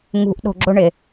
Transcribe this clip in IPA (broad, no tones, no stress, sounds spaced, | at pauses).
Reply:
ŋ ṳ ʔ ɗ o̤ ɡ͡ǁ ʊ ɳ ɪ